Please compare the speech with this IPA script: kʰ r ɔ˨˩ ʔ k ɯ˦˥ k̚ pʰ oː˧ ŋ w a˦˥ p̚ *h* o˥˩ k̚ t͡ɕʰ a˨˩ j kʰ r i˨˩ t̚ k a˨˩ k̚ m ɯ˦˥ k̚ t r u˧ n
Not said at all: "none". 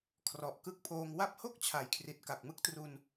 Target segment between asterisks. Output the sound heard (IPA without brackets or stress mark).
h